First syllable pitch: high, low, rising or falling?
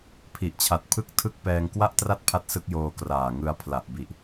low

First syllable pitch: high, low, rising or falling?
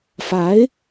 rising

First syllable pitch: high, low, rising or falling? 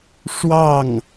falling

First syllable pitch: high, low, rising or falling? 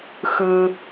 low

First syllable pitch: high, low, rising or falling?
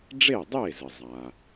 falling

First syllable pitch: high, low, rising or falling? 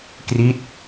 falling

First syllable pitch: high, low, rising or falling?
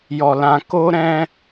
low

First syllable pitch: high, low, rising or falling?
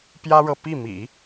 high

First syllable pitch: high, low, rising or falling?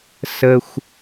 low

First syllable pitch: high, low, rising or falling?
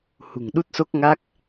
low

